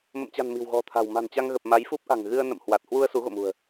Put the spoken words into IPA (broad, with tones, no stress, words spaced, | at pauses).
mə̰˧˨mt͡ɕa̤˨˩n mi̤˨˩wɣɔ̤˨˩t̪ʰa̤˨˩w ma̤˨˩nt͡ɕa˧ŋɣə˨˩p̚ ma˨˦jfu˦˥p̚ʔa̤˨˩ŋ ɣɨ˧ə̯ nə̰˧˨mhwa˨˩t̚ hwu˧ə̯ su˨˦ɣo̰˧˨mṳ˨˩ə̯